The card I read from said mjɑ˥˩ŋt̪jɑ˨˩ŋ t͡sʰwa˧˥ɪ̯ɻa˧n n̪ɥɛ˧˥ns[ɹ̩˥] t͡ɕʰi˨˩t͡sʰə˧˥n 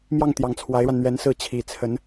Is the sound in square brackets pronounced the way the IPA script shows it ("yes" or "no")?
no